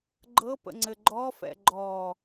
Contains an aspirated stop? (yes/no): no